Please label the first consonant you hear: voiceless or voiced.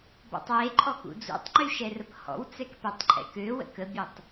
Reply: voiced